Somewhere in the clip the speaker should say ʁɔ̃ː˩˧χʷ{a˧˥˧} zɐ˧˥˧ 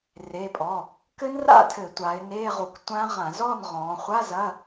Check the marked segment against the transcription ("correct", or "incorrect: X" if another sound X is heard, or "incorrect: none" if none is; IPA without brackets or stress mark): correct